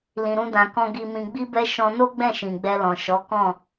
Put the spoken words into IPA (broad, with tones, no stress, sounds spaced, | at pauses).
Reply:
l ĩ˧ ɾ ũ˦ d ã˧ k ɔ̃˦ ɡ i˧ m ĩ˧ ɡ͡b i˦ b ɛ˦ ʃ ɔ̃˧ n o˦ ɡ͡b ɛ̃˦˨ ʃ ĩ˨ ɡ͡b ɛ˧ l ɔ̃˨ ʃ ɔ˨˦ k ɔ̃˦˨